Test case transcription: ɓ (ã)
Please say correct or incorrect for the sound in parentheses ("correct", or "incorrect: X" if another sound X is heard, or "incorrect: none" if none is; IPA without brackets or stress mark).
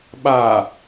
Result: incorrect: a